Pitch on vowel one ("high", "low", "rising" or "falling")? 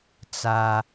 high